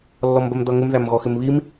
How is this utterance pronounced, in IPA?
lː ɔ m b ɜ m d̪ ʌ ŋ ɪ m ð æ m ɣ ɔ x ɪ m β i m

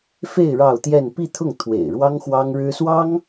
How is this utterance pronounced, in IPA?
f e˥˧ ɪ̯ ɻ ɑ˥˧ ʊ̯ t̪ j ɛ˥˧ n p i˥˧ t̪ʰ ʊ˥˩ ŋ t̪ʰ w ḛ˨˩ ɪ̯ ɻ w ɑ˥ ŋ x w ɑ˥ ŋ ɻ ɻ̩˥ s w ɑ˥ ŋ

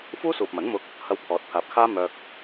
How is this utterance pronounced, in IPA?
f uː˥ s uː˨ p̚ m ɐ˨˥ n m ʊ˧ k̚ | h ɐ˧ w pʰ ɔː˨˥ t̚ pʰ aː˨˥ p̚ kʰ aː˥ m œː˧ k̚

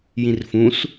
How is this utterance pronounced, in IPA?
j ĩ r f ũ s

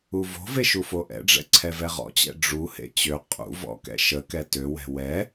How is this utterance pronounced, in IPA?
u v o̤ v e ʃ u f o ʔ ɛ̰ ɖ͡ʐ ɛ̰ ǀʰ ɛ v ɛ ʁ ɔ̰ t͡ɕ ɛ̰ ɖ͡ʐ u h ḛ t͡ɕ ø qʼ ṵ v ɔ̰ k ɛ̰ ʃ ə k ɛ t ø w ɛ̤ w ɛ

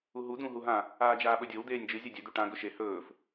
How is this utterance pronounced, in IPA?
u ɦ u d̪ ũ ɦ u ɦ ã | aː d͡ʒ aː ɓ ɵ dʲ o w d̪ eː nʲ d͡ʒ ɨ zʲ ɐ dʲ ɵ d̪ u ʈ ã ɡ ɵ ʃ e h ɵː f

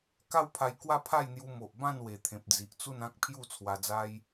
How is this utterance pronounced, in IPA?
k a˦ w pʰ a˧ j k w a˦ pʰ a˥˧ j n̪ j u˧ m o˨ ʔ b ã˥˧ n w e˨˩ t̪ʰ ẽ˨ p̚ d͡z i˨ ʔ t͡s u˥˧ n ã˦ k̚ pʰ j u˥˧ t͡sʰ w a˧ d͡z a˦ j

